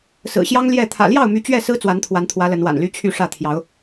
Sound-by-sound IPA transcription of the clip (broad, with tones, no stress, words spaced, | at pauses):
sɹ̩˨˩ɕjɑ˦ŋ ljɛ˥˨ t̪ʰä̰˨˩ljɑ˥˨ʊ̯my˨˦ t͡ɕɥɛ˥˨sɹ̩˦ t͡swa˨˦nt̪ʰwa˨˦nt̪ʰwä˨˦ lə˨˦nwa̰˨˩nly˦ t͡ɕʰy˥˨ʂä˥˨ t̪ʰjɑ˨˦ʊ̯